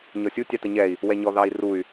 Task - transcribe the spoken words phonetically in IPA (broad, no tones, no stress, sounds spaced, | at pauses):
ɲ ɔ sʲ u tʲ ɑ t ə ɲ ɛ i̯ | w ɛ ɲ ɔ ð ɑ i̯ r u y̯